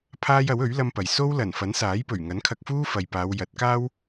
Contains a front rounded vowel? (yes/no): no